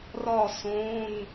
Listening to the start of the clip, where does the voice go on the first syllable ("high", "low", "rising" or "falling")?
falling